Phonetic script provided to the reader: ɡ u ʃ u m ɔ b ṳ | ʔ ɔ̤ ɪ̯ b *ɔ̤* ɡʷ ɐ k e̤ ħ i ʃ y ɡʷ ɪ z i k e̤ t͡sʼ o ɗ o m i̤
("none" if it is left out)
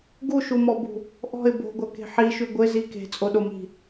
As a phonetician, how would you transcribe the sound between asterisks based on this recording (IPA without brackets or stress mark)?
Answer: o̤